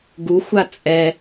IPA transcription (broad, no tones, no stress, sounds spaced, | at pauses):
ɡ u xʷ a t͡sʼ ɛ